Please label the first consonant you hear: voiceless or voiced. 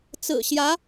voiceless